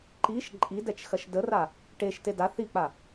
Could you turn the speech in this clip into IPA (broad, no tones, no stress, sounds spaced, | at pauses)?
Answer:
ǃ i ʃ ǃʼ i d ɛ t͡ʃ x ɐ ʃ d ə r a | ʈ e ʃ t e d a θ i k͡p a